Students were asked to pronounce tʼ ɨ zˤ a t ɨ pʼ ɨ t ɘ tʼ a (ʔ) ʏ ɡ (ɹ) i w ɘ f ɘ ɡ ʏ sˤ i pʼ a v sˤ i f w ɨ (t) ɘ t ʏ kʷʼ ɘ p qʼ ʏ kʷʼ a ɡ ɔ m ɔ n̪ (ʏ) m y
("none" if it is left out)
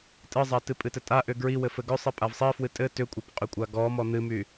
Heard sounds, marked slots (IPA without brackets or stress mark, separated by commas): ʔ, ɹ, tʼ, ɨ